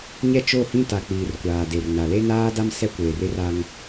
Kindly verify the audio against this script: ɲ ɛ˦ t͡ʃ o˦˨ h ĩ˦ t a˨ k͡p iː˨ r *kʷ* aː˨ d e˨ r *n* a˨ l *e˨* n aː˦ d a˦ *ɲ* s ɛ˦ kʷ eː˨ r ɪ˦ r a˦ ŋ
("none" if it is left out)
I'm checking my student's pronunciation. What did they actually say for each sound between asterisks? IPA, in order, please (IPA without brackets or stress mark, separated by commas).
kʷ, n, e˦, m